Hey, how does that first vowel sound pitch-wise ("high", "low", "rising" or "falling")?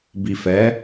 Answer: low